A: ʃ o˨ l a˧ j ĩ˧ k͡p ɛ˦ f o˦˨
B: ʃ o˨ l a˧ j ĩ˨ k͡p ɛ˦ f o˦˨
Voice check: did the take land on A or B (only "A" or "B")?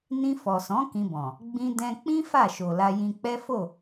A